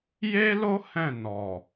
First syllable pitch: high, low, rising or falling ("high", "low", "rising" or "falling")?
high